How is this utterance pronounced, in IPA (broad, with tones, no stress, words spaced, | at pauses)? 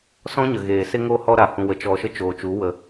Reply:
sɔ̃˦ ɲə˨ɣeː˨ se˦ŋo˦ hɔ˦ɾa˨ hũ˨wə˨ t͡ʃɔ˨ʃə˧ t͡ʃoː˨t͡ʃu˨˦ wə˨